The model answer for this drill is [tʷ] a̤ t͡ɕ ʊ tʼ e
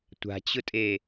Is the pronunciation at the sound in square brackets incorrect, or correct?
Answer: correct